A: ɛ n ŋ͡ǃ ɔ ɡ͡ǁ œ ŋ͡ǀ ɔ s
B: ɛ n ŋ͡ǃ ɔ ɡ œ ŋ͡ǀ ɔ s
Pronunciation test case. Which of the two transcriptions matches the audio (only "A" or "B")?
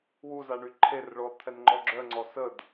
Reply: A